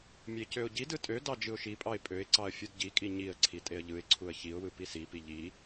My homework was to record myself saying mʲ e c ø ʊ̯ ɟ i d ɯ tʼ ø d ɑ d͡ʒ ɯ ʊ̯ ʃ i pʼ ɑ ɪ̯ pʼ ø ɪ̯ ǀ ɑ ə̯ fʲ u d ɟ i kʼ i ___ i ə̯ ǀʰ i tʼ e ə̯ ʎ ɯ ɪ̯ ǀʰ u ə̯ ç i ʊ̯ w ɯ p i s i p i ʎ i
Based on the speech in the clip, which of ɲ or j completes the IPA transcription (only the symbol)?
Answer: ɲ